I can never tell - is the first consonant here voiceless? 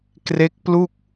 yes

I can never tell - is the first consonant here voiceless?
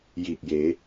no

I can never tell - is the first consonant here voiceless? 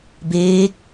no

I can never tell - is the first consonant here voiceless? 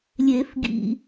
no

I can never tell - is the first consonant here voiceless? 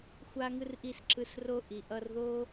yes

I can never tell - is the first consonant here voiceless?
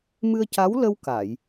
no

